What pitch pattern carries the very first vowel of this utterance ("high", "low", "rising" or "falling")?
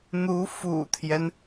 rising